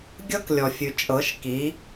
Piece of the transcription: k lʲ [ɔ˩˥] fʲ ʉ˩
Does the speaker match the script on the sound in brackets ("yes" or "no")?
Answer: no